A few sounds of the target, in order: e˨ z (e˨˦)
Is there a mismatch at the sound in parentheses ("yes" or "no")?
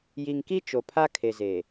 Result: yes